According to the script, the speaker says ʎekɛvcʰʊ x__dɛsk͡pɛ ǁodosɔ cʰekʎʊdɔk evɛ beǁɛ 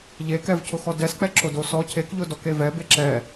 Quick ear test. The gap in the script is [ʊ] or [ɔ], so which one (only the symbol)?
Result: ɔ